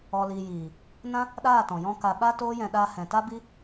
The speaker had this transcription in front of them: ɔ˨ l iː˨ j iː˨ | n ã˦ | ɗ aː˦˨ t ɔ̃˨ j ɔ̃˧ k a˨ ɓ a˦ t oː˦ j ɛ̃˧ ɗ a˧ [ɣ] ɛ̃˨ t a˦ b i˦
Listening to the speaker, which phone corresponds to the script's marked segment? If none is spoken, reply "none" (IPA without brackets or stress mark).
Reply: h